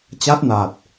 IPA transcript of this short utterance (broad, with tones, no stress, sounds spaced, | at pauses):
t͡ɕ a˦˥ t̚ n aː˨˩ t̚